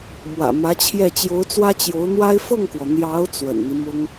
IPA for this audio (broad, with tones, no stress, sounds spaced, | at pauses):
m w ä̰˨˩ m ä˧˥ t͡ɕʰ j ɛ˥˩ t͡ɕ j o˧˥ ʊ̯ t͡s w ä˥ t͡ɕ j o˧˥ ʊ̯ n̪ w a˥ ɪ̯ f ɤ˥˩ ŋ k w ɔ˩ n̪ j ɑ˧˥ ʊ̯ t͡s w ə̰˨˩ n n̪ i˦ m ʊ˥ ŋ